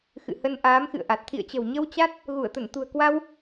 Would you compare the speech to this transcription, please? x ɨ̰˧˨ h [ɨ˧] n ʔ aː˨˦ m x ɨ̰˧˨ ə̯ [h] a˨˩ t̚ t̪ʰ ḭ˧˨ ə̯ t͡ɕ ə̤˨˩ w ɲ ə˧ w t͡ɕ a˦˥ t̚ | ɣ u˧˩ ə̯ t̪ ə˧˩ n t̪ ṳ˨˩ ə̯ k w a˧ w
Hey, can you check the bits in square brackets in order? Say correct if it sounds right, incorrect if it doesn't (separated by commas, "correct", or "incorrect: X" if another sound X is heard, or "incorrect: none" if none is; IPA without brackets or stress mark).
incorrect: ə˧, incorrect: ʔ